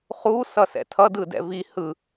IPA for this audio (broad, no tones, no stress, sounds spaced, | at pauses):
χ u s ʌ s ɛ̰ tʰ ʌ d ɯ d ɛ̰ v i h ɯ